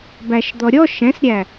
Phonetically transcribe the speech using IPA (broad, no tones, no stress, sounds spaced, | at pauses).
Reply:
b æ ʃ d̪ ɔ ɾʲ ɔ ʃ ɛ̃ s ɾʲ æ